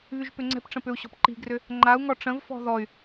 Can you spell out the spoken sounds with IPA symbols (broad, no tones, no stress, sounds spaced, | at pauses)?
β y ʒ p ʏ ŋ͡ǀ ɛ̤ p ʈ͡ʂ ə̃ p ʏ u̯ ɕ ɔ̤ p ǃ i̤ ɡ r ʏ | ŋ͡ǃ a u̯ ŋ ɔ ʈ͡ʂ ə̃ v f ɔ̤ ð ɔ y̯